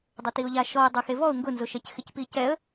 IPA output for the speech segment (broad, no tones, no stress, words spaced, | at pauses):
dˤʊtiʊ̯ʎaʃɔə̯ dˤʊxevɔʊ̯ ŋɡʊnzʊʃɛc xɪcpicɛə̯